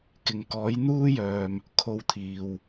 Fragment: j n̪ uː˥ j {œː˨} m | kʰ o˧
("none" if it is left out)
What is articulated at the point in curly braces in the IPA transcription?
œː˨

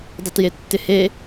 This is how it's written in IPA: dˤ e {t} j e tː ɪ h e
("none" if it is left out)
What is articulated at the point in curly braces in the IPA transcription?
t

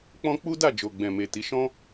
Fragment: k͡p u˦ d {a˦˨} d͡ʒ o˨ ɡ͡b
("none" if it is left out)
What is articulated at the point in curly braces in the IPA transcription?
a˦˨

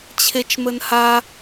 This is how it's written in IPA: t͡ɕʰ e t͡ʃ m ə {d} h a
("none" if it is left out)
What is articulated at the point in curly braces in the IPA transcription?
n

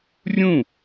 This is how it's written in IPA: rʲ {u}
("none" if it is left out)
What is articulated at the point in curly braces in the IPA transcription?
ũ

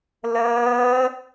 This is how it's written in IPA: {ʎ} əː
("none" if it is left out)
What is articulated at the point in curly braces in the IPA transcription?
l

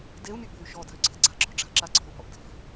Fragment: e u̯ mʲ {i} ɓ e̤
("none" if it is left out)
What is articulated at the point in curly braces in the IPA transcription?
ɨ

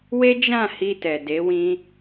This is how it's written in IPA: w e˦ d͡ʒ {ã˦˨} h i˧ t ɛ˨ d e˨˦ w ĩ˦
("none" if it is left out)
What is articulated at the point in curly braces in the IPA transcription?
ã˦˨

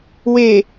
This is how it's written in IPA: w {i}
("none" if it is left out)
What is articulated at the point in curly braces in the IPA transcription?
e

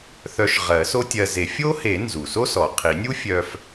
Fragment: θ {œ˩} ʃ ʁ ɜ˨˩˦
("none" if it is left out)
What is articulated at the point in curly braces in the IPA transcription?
œ˧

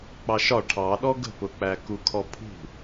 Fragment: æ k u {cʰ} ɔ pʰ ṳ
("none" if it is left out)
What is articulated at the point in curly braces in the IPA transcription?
kʰ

